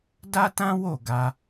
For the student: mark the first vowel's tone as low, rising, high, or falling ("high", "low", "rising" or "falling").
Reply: high